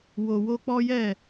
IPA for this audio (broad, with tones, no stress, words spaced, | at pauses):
wo˨wo˧k͡pɔ˦jɛ˦˨